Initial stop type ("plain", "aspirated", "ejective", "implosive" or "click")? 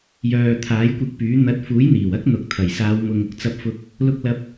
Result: aspirated